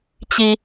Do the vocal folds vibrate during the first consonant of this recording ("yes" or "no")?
no